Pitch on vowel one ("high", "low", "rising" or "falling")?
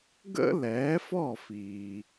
high